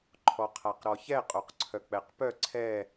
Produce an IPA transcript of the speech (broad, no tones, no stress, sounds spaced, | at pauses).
ǃʰ ɔ qʰ a q ɾ ɔ ç ɛ qʼ o q ǀʰ œ k͡p ɛ q p œ ǀʰ ɛ